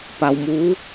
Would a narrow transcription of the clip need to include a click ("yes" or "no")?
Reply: no